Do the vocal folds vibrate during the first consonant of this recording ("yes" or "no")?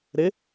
yes